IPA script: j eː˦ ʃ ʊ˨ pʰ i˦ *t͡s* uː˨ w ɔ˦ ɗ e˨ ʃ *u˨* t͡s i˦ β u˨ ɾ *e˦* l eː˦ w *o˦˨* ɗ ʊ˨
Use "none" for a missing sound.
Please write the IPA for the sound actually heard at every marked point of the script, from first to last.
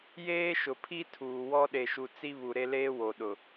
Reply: tʰ, u˨, e˦, o˨

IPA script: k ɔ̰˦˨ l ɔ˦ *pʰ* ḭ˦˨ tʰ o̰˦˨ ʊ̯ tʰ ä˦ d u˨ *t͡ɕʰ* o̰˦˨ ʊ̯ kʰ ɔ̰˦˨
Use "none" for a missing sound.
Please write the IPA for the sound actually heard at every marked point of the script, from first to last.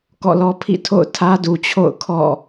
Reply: pʰ, t͡ɕʰ

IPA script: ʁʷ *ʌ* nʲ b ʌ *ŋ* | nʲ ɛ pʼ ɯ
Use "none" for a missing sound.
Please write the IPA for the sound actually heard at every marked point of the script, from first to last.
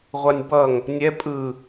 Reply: a, ŋ

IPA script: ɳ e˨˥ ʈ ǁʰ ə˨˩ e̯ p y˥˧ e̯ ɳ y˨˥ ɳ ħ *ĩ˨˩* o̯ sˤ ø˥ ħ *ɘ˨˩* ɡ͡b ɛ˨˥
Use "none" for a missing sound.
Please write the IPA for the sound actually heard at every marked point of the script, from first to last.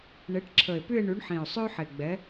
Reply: ĩ˨˩, e˨˩

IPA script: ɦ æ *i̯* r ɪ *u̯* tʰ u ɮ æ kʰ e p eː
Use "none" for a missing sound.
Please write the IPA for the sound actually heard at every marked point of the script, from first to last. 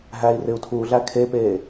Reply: i̯, u̯

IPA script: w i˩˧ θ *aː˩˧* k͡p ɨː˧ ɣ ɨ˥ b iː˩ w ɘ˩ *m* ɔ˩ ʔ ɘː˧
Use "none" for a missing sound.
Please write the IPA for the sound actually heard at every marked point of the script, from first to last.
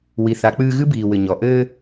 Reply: a˩˧, ɲ

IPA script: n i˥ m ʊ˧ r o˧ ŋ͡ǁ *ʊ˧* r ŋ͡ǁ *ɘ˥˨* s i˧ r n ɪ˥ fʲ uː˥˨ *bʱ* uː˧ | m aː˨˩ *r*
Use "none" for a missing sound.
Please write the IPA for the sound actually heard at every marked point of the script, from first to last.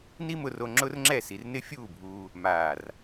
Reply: ʊ˥, ɛ˥˨, bʱ, r

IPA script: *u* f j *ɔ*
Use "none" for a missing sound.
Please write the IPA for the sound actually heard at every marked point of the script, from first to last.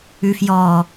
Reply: ʉ, ɔ

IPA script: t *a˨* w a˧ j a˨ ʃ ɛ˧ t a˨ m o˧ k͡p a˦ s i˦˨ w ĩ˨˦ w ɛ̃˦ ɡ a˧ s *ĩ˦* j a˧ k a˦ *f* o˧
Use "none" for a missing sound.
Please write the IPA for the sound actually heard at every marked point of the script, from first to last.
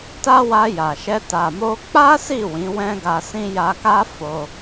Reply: a˦, ĩ˦, f

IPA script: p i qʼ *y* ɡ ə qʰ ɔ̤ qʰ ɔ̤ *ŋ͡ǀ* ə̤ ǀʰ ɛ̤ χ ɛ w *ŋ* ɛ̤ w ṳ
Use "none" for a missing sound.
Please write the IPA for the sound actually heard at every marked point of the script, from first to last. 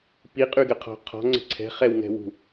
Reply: y, ŋ͡ǀ, ŋ

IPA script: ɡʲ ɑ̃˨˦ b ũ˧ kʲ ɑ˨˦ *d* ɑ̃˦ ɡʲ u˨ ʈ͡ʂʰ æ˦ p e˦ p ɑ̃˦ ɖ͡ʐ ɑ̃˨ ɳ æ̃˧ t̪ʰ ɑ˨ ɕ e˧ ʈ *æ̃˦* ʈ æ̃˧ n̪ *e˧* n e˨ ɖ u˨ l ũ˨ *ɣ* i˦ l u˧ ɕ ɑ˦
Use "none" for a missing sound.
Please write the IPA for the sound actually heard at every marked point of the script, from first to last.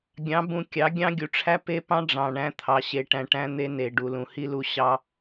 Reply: ɡʲ, æ̃˧, e˧, h

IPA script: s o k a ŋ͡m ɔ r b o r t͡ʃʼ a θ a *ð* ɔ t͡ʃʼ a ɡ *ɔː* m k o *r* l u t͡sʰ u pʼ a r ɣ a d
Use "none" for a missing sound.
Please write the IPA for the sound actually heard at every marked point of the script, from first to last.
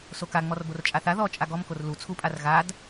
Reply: ð, ɔ, r

